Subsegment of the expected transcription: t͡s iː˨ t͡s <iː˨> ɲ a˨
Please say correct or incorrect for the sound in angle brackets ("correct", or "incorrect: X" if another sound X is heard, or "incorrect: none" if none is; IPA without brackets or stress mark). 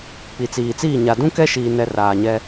incorrect: iː˦˨